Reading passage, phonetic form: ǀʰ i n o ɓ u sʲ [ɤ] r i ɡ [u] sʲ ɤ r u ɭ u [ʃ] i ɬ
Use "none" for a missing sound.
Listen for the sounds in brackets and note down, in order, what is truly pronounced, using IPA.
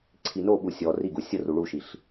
ɔ, u, ʃ

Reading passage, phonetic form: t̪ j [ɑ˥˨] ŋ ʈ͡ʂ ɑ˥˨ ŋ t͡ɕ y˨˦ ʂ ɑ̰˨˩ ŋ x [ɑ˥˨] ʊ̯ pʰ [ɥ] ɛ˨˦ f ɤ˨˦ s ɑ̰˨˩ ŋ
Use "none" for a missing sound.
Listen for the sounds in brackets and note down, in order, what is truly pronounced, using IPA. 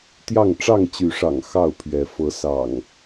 ɑ˥˨, ɑ˥˨, ɥ

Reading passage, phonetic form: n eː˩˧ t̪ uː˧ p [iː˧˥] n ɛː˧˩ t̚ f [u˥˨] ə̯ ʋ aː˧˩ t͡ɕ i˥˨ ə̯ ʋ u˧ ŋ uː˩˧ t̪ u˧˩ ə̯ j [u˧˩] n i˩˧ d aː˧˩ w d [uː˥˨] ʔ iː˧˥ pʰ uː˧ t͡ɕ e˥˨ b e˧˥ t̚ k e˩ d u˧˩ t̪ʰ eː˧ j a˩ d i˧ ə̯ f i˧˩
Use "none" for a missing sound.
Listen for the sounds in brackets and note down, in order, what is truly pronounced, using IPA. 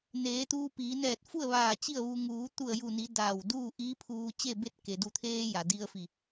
iː˩˧, u˥˨, u˧˩, uː˥˨

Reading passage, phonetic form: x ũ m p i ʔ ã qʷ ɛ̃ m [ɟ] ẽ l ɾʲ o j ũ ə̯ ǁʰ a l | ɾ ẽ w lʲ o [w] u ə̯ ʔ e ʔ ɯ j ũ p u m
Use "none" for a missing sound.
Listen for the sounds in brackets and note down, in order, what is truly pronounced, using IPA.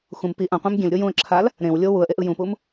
ɡʲ, w

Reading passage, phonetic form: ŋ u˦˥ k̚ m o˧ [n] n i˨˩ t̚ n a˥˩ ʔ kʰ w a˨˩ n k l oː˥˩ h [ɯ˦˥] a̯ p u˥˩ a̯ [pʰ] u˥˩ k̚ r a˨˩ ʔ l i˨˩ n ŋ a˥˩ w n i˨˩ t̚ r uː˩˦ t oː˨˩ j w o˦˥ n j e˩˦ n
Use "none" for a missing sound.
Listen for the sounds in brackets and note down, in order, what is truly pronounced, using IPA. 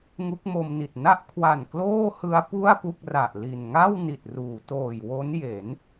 m, ɯ˦˥, p

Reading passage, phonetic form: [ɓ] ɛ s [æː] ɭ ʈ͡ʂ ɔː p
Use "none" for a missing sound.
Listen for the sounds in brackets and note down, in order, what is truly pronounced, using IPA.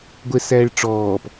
ɡʷ, æː

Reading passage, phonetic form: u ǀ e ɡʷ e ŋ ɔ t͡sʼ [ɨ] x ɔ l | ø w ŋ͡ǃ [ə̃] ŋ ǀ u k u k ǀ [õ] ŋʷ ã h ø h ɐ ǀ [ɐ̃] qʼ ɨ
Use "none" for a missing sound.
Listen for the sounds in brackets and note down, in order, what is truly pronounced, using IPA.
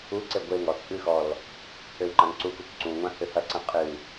ɨ, ã, ũ, ɐ̃

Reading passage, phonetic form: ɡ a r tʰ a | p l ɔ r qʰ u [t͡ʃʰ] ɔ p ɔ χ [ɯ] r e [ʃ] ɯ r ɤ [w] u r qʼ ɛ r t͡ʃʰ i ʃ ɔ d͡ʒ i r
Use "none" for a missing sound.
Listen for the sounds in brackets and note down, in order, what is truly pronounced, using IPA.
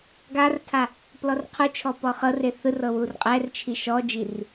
t͡ʃʰ, ɤ, θ, w

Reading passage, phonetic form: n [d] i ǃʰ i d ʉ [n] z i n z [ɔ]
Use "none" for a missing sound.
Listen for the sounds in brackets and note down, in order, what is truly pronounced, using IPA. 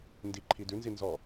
d, n, ɔ

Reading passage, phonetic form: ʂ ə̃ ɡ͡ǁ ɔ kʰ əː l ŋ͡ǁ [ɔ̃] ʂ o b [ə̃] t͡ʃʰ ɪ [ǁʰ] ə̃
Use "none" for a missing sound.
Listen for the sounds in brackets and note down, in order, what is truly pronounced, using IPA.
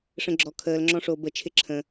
ɔ̃, ə, ǁʰ

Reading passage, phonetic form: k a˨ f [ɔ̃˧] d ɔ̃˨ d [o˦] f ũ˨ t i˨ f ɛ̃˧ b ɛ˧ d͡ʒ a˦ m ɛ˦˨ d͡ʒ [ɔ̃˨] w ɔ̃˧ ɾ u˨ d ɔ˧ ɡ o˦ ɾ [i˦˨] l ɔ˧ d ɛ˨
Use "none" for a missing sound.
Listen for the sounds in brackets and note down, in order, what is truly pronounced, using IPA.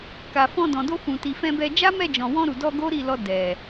ɔ̃˧, o˧, ɔ̃˨, i˦˨

